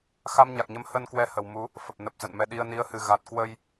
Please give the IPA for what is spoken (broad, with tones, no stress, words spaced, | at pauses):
xa˧mɲa˨˩k̚ɲə˨˦mhə˧n kwɛ˧hə˨˩w mu˨˦ | fə˨˩p̚nə˨˩p̚ zə̰˧˨nmɛ˧ɗi˧ə̯ ni˨˦ə̯hɨ˨˩ ɣa˨˩t̚kwə˧j